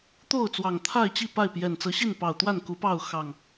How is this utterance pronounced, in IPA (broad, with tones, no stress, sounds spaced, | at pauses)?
t̪ o˥˨ ʊ̯ t͡s w ɑ˨˩ ŋ t̪ʰ a˥˨ ɪ̯ t͡ɕ i˥˨ p a˥˨ ɪ̯ p j ɛ˨˩ n t͡s ɤ˨˦ ɕ i˥˨ n p ɑ˨˩ ʊ̯ t̪ w a˥˨ n k u˨˦ p ɑ˥˨ ʊ̯ x ɑ˨˩ ŋ